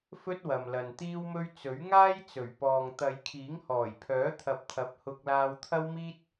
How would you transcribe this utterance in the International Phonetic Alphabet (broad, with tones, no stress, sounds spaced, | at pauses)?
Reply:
f ɵ˥ t̚ w ɐ˨ m l ɐ˨ n t̪ iː˥ w m ɵ˥ ɥ t͡s ɵ˨˥ ɥ ŋ aː˥ j t͡s ɵ˨˩ ɥ p ɔː˨ ŋ t̪ ɐ˨˧ j kʰ iː˨˥ ŋ h ɔː˨˩ j pʰ œː˨˥ t̪ʰ ɐ˨˥ p̚ t̪ʰ ɐ˨˥ p̚ h ʊ˧ k̚ l aː˧ w t̪ʰ ɐ˥ w m iː˥ t̚